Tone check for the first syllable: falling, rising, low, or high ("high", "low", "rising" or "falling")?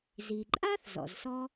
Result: low